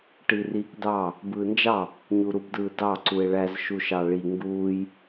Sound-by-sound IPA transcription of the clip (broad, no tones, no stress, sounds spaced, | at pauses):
ʈ i r iː k d ɑ | b ɯː n d͡ʒ ɑ | ɲ u ɾ u b d ɯː d ɑ ǀ u e̯ ɭ æ z ʃ u ʃ ɑ ɭ i ŋ ɡ uː j